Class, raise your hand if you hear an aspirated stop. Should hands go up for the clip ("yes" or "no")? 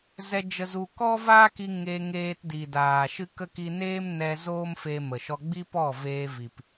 no